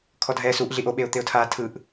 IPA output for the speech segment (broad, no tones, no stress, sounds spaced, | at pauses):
kʰ ɔ dʱ ɛː s u ʔ ɮ i ʔ o ɓ e ʊ̯ t̪ e ʊ̯ tʰ aː tʰ ɯ ʔ